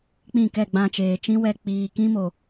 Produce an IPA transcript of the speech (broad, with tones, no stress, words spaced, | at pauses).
k͡pĩ˦˨kɛ˦˨ɡ͡bã˧t͡ʃeː˨ t͡ʃĩ˦wɛ˧ k͡piː˨kĩ˦mo˨